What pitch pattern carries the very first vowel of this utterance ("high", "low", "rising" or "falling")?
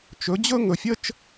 rising